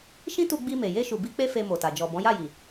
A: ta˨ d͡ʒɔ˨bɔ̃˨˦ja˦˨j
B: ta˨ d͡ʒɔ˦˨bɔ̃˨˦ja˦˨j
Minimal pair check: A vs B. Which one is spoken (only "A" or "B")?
A